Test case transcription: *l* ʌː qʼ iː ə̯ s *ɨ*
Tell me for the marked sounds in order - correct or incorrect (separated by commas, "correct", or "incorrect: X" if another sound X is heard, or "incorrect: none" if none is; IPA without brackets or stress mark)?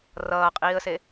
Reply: incorrect: r, incorrect: e